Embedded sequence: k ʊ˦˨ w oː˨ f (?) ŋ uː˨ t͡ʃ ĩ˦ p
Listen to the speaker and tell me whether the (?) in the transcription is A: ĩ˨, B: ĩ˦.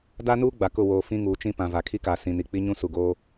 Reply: B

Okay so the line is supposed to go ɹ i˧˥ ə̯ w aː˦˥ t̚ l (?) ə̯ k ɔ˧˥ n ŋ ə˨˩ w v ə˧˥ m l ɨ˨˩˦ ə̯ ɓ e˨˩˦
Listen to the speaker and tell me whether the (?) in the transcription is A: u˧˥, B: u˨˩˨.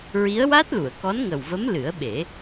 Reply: B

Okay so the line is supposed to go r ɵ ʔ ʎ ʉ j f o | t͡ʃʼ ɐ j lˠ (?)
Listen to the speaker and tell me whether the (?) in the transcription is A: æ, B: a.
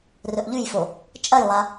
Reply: B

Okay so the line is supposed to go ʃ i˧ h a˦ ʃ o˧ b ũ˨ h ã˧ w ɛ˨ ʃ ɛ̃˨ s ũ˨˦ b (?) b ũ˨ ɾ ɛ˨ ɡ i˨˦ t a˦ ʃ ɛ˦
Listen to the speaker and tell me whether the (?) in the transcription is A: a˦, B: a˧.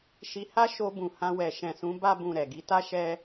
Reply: B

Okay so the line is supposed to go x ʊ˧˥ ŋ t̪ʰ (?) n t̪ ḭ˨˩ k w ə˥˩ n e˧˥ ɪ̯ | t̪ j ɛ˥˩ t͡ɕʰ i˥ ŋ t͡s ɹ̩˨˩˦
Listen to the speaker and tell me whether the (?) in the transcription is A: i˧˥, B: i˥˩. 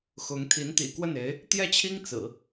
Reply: A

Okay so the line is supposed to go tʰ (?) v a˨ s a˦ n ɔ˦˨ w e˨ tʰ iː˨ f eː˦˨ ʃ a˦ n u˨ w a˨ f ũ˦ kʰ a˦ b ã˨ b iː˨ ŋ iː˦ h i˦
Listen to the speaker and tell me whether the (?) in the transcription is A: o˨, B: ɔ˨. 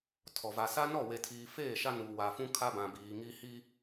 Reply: B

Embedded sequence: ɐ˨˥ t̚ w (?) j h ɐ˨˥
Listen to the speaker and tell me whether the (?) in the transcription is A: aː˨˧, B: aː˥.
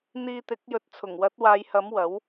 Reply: A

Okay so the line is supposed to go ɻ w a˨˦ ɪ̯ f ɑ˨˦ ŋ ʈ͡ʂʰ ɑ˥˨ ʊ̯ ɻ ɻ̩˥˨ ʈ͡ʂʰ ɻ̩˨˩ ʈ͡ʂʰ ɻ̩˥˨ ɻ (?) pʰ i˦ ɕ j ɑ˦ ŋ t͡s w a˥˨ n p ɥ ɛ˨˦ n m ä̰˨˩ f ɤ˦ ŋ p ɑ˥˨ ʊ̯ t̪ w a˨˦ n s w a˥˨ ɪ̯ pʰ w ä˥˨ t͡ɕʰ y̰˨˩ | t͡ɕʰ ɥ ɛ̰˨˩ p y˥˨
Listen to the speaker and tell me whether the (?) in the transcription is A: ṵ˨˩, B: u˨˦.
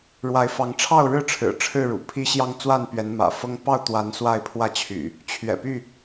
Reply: A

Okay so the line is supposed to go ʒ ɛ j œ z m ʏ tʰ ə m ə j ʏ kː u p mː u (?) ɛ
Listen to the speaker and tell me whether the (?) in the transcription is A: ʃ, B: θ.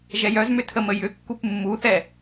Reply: B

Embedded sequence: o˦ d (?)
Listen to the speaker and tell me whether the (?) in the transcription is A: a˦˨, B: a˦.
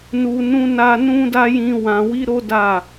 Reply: A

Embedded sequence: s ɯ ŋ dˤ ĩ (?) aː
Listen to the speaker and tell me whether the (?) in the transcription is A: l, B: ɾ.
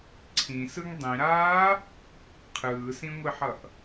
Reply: B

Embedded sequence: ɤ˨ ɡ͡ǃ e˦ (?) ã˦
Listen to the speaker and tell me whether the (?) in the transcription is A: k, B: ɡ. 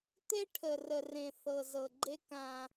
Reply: A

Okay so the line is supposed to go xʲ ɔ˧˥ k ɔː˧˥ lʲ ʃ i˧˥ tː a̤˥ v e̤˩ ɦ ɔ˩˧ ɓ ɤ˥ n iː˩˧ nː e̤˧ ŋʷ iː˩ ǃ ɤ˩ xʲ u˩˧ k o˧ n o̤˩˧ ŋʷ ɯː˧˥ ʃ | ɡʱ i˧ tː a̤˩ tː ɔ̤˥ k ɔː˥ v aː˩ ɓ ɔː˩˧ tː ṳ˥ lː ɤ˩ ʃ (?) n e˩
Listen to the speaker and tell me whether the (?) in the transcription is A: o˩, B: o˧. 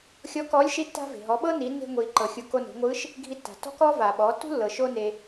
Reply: B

